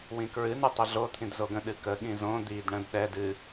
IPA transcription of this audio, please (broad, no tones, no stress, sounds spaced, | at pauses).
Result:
w ĩ k ɹ ɨ n ɨ tˤ ə ɮ o t̪ʰ ĩ d z o ɡ ə̃ ɗ ɨ k ə ɠ ĩ z õ d̪ i d ɳ ə̃ d ɗ ɛ d ɨ